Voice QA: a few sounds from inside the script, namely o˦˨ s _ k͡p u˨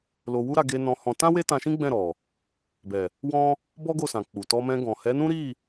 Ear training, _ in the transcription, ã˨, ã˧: ã˨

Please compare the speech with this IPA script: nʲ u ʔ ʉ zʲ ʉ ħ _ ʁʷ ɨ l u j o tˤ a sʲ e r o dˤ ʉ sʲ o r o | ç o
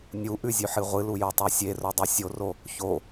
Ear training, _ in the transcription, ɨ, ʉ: ɨ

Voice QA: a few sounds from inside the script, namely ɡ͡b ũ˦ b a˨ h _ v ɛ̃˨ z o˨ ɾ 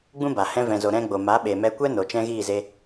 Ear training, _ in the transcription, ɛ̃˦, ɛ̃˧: ɛ̃˧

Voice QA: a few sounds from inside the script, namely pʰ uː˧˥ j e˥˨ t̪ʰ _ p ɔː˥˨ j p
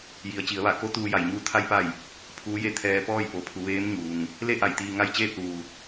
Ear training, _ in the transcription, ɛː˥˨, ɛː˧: ɛː˧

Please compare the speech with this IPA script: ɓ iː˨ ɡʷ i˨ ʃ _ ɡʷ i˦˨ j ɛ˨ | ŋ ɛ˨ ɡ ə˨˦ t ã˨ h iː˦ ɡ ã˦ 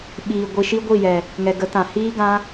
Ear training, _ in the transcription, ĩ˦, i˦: i˦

